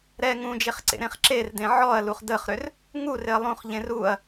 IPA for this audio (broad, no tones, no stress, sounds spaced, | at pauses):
ɾ ɛ ŋ ũ d͡ʒ e χ ǀ ḛ ɾ ẽ χ ǁ e r d ẽ ʕ ɔ ɐ̯ l u χ d ə χ ɾ ʏ r | ŋ u r ɪ ɐ̯ lˠ ũ χ ʎ ẽ r u ɐ̯